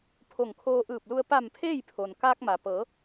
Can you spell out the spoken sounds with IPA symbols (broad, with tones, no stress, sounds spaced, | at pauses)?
pʰ o˧˩ ŋ kʰ oː˧ ʔ ɯː˧˩ p̚ l u˧ ə̯ p a˧˩ m pʰ eː˥˨ j pʰ o˩ n k aː˧ k̚ m a˩ p ɤː˩˧